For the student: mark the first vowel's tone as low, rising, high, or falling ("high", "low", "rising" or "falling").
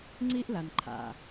high